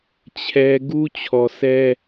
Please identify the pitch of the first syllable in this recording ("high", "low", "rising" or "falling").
high